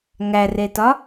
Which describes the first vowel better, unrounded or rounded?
unrounded